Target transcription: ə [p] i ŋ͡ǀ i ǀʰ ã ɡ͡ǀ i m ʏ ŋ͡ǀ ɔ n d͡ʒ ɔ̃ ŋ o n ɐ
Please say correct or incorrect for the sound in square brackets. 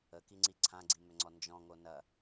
incorrect